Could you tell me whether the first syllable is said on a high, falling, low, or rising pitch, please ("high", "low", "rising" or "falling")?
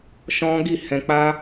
high